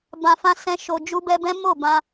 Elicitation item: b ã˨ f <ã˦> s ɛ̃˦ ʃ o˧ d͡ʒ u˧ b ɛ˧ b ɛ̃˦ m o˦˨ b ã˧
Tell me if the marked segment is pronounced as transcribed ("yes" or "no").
no